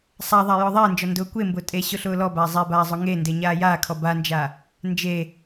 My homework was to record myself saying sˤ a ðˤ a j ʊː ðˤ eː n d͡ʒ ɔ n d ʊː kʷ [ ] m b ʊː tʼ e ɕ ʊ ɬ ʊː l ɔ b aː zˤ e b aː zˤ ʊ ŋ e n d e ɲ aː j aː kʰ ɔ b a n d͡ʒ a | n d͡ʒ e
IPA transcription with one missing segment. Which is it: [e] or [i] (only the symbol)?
e